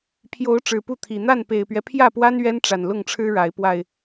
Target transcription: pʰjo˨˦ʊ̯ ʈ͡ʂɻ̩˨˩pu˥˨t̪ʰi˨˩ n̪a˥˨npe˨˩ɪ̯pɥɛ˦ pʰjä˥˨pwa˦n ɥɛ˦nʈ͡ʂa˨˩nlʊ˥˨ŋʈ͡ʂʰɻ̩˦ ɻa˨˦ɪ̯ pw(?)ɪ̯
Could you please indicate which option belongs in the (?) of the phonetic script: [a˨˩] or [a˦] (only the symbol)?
a˨˩